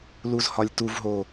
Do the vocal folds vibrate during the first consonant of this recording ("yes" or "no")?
yes